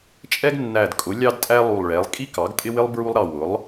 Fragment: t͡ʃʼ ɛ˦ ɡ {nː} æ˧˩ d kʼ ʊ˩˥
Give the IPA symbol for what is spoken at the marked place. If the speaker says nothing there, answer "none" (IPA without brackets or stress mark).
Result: nː